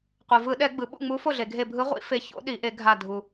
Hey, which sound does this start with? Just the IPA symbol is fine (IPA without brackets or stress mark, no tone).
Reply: qʷ